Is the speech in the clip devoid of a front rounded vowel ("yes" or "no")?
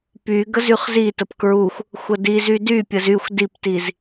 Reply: no